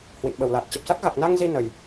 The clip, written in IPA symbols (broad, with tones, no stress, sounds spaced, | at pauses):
h w ḭ˧˨ n ɓ ə˨˩ w l aː˨˩ t̚ t͡ɕ ə˨˩ p̚ s a˦˥ k̚ ɣ a˨˩ k̚ n a˧ ŋ z i˧ n ə˨˩ j